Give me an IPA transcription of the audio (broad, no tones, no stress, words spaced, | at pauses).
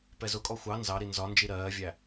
pɛzʊkʼɔ xʷɑ nzɑɾi nzɒnd͡ʒi ɾɜːvʲæ